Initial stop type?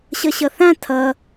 aspirated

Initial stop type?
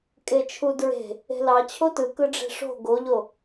ejective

